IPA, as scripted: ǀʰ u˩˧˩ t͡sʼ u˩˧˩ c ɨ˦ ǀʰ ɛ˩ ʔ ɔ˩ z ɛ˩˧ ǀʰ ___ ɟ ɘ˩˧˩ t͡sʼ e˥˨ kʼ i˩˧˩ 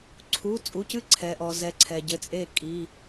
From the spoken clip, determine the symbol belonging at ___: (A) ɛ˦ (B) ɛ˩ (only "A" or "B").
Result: B